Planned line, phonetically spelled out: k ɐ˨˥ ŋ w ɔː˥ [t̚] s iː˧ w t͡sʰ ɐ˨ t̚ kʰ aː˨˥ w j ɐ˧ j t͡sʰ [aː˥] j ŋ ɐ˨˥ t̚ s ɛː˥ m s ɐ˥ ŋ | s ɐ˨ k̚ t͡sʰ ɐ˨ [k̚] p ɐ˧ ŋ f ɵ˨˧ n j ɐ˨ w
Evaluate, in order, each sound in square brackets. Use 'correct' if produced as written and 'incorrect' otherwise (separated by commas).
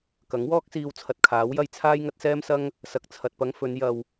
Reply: incorrect, correct, incorrect